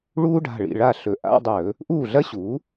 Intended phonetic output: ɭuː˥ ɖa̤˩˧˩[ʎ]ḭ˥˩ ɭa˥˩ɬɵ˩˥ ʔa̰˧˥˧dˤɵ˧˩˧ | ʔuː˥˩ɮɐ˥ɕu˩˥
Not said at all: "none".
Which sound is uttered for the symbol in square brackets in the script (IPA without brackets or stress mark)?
ɭ